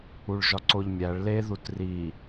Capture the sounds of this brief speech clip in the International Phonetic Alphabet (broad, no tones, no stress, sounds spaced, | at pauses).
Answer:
u ɭ ʒ ɒ ǀ o ʎ mʲ æ ɭ l e ð u t r i